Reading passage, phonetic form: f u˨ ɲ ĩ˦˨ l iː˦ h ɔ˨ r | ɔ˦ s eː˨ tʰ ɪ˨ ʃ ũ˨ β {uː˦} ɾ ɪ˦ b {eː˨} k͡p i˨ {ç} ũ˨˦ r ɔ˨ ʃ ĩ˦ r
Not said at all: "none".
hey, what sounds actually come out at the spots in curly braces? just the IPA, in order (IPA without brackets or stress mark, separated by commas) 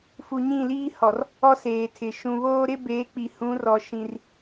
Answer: oː˦, eː˨˦, h